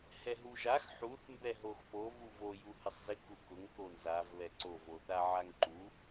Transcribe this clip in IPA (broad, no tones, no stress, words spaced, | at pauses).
hɛɦuʒax ħuθ mbɛɦoxpo vuvo juhɪsˤzɪ kukʊŋ konzav βɛǀov oθaʕaŋǃu